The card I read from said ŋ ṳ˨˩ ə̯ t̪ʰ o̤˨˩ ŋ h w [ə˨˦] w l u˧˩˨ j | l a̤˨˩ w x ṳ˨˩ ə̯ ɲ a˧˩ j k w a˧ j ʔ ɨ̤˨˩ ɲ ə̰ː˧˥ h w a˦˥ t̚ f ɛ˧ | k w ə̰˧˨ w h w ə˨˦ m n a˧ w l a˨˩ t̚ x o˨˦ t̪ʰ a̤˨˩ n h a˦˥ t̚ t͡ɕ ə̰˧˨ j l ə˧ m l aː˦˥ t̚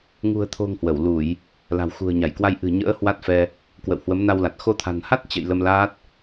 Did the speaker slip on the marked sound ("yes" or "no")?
yes